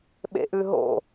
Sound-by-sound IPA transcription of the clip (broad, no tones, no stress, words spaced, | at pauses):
ɓḛʔʉɦo̰